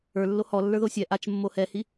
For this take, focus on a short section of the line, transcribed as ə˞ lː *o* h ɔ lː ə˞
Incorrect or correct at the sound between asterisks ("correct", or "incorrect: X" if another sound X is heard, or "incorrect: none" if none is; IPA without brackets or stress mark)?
correct